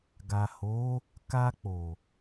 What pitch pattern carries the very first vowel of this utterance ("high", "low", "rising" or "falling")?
low